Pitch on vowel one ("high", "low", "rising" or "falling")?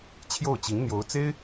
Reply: falling